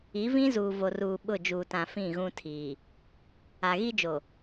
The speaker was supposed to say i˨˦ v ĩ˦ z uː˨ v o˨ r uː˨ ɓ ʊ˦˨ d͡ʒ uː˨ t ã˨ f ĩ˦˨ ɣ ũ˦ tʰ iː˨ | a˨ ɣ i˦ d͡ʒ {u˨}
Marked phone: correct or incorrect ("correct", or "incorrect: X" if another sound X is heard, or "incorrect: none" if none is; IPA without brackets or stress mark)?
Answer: incorrect: o˨